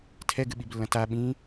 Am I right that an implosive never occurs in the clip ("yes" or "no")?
no